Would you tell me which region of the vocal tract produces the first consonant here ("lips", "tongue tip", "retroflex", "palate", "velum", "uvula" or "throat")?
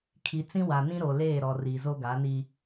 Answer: velum